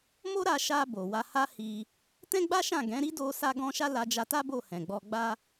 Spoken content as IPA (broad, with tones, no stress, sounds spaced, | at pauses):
m o˦ ɾ a˧ ʃ a˧ b o˨ w a˧ h a˦ h i˧ | t ɛ̃˦ ɡ͡b a˦ ʃ ã˦˨ ɡ ɛ̃˨˦ ɾ i˦ d o˧ s a˦ ɡ ɔ̃˦ ʃ a˦ l a˧ d͡ʒ a˧ t a˦ b o˦˨ h ɛ̃˨ ɡ͡b ɔ˧ ɡ͡b a˧